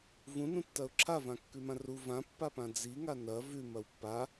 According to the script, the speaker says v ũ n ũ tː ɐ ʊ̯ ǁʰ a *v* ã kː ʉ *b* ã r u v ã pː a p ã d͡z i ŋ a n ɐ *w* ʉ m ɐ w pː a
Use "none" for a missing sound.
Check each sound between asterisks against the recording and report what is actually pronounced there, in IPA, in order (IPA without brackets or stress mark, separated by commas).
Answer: v, m, v